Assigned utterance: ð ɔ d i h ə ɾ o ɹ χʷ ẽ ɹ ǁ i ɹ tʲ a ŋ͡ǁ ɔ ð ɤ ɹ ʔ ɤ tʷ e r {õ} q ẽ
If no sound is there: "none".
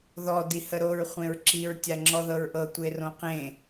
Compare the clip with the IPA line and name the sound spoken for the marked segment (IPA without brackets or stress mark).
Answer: õ